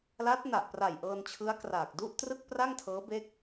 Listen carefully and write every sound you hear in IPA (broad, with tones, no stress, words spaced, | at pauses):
la˦˥t̚na˨˩ʔpra˨˩j ʔɤː˧nt͡ɕʰɯ˦˥a̯kraː˨˩k̚ du˥˩ʔtrɯ˥˩k̚pra˥˩ŋ tʰɤː˦˥be˦˥k̚